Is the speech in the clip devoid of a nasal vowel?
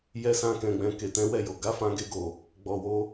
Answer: no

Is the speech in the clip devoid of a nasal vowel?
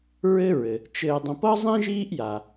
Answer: no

